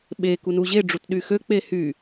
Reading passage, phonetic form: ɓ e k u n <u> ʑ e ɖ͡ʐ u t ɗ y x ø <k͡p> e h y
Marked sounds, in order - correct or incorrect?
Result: correct, correct

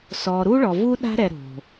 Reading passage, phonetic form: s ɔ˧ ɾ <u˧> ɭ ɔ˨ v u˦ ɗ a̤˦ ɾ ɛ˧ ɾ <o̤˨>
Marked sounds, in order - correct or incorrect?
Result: incorrect: u˦, correct

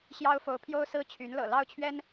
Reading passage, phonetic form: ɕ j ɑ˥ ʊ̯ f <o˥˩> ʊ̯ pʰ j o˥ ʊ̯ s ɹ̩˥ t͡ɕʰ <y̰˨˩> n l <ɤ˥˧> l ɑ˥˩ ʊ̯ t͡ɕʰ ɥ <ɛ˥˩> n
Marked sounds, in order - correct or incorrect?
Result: incorrect: o˧˥, incorrect: y˧˥, incorrect: ɤ̰˨˩, incorrect: ɛ˥

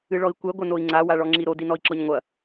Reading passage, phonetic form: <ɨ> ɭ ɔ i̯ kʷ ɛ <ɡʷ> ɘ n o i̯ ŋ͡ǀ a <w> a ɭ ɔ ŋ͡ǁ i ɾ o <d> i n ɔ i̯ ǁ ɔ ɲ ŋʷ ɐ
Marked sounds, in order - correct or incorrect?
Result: correct, correct, correct, correct

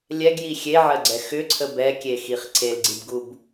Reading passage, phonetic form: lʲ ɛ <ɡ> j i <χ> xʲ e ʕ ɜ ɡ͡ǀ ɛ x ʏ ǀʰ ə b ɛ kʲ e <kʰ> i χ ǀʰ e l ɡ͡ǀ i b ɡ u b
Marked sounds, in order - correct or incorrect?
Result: correct, incorrect: none, incorrect: x

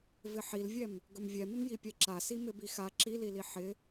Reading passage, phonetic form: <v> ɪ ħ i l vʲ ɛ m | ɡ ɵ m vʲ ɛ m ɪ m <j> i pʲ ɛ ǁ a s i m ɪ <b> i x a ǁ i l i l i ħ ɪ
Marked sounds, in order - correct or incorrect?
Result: correct, correct, correct

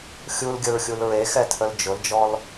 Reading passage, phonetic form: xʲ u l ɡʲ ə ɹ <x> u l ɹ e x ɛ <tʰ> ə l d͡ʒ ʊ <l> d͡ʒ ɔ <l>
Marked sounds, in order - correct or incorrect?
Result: incorrect: xʲ, correct, correct, correct

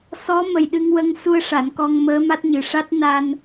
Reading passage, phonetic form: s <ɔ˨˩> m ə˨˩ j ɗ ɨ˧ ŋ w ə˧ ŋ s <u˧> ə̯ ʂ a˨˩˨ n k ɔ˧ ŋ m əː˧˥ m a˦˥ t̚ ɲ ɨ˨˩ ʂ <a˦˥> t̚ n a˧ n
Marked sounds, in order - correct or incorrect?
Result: incorrect: ɔ˧˥, correct, correct

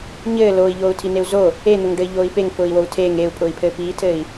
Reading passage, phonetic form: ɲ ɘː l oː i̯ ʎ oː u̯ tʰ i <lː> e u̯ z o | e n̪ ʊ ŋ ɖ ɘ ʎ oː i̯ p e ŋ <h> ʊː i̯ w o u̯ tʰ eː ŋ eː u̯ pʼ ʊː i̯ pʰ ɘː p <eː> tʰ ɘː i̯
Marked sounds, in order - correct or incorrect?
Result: incorrect: n, incorrect: f, incorrect: iː

